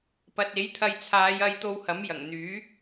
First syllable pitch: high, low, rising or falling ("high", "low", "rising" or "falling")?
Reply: low